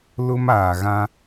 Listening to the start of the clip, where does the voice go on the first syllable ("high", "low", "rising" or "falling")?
high